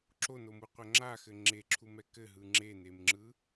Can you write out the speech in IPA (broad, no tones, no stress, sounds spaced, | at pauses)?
ǁ o n o m u qʷ æ ŋ͡ǁ a x ɘ ŋ͡ǁ e ǁʰ u m ɛ k ɘ ɦ ɯ ŋ͡ǁ e n e m ŋ͡ǁ ɯ